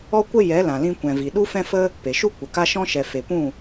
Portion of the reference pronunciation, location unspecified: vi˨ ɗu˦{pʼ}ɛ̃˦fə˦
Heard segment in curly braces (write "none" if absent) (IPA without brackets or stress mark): f